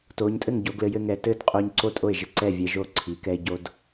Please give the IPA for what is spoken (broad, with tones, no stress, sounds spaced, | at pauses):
t o˩˧ ɲ tʼ ɘ˥˩ ŋ ɟ o˩˧ ɡ l ɘ˩˧ j ɘ˧ ŋ ɛ˩˧ t ɘ˥˩ d qʼ o˧ ɲ ǀ o˥˩ tʼ o˥˩ e̯ ʒ ɘ˧ ǀ ɛ˥˩ vʲ ɛ˧ ʒ o˥˩ ǀʰ i˩˧ k ɛ˧ e̯ ɟ o˧ d